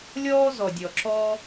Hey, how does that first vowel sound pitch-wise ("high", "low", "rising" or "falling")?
high